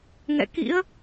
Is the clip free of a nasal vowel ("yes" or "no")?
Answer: yes